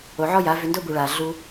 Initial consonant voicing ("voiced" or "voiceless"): voiced